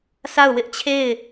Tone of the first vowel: falling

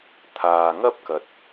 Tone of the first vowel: low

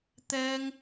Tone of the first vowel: high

